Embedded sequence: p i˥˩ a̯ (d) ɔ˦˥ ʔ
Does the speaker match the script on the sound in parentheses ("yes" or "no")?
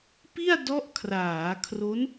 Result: yes